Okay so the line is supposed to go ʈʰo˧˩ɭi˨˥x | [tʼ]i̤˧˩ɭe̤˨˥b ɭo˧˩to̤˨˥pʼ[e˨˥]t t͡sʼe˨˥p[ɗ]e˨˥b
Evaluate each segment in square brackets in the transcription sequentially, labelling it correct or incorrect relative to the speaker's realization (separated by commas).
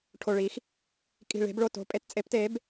incorrect, correct, incorrect